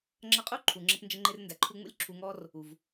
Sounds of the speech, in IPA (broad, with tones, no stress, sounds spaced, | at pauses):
ŋ͡ǁ ʌ˧ qʼ u˥ ǃʰ u˩ ŋ͡ǁ ə˧ p n d͡ʒ ə˧ ŋ͡ǃ ɪ˧ r n d æ˩ ǃʰ u˧ ŋ͡m ṵ˥ lʲ ǁʰ u˧ ŋ ɔ˥ r | u˩ v